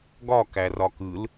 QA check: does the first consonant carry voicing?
yes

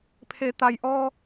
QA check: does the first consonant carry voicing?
no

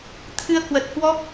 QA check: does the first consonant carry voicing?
no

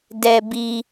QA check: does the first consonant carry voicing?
yes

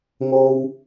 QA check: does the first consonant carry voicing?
yes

